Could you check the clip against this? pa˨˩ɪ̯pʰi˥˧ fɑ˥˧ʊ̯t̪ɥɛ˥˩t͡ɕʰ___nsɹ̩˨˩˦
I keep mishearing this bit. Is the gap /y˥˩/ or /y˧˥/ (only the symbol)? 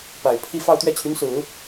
y˧˥